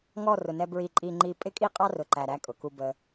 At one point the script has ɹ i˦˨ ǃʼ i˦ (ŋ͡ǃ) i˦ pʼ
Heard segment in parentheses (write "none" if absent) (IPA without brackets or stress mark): ŋ͡ǃ